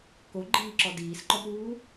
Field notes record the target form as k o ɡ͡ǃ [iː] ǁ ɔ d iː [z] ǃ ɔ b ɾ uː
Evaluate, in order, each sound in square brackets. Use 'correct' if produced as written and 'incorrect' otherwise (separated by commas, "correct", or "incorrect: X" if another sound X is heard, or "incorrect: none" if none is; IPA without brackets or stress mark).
correct, incorrect: s